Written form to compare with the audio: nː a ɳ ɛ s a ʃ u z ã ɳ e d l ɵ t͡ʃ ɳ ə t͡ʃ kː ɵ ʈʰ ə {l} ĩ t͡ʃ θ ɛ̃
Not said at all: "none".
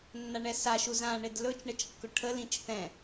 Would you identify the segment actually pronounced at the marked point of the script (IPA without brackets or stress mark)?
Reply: l